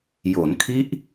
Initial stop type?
aspirated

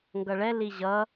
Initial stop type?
plain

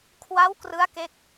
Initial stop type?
aspirated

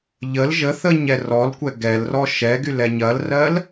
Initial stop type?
plain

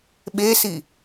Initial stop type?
implosive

